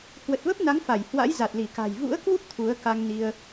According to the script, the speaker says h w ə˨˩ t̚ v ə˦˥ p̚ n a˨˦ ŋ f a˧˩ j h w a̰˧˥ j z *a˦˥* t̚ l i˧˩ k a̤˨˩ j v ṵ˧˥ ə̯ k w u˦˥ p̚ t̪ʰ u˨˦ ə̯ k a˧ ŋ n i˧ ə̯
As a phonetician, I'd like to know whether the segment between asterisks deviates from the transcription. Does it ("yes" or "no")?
yes